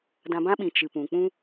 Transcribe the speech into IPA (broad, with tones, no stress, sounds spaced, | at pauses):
d ã˧ b ã˦ ɓ ĩ˨ t͡ʃ ɨ˨ p ũ˨ k͡p ũ˦